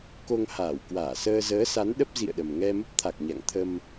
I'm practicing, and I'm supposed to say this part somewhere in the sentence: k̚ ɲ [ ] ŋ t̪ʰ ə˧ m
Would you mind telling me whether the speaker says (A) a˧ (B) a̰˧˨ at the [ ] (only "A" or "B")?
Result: B